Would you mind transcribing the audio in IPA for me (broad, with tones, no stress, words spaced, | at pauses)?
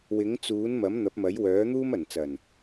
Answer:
wɪ˨˥ŋt͡suː˨˥n mɐ˨˥mn̪ɐ˨˥p̚mɐ˨˥j wœː˨˥ n̪uː˥mɐ˨˩nt͡sɐ˨˩n